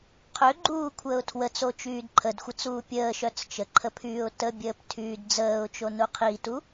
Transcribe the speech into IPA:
qʰøɡ͡ǃuːkʷʰəːʊ̯ tʰwət͡sot͡ʃyːd ǃʰədxʷət͡suː pʲəːʃœt͡s t͡ʃəǃʰəpʰyːʊ̯ təbʲəːptʰyːd d͡zəːʊ̯t͡ʃonu qʰitu

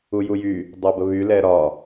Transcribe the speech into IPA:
ujujy | dˤɛbəβy lɛɾɒ

